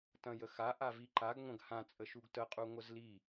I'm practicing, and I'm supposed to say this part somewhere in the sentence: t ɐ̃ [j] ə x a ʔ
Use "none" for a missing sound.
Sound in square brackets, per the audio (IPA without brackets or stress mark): j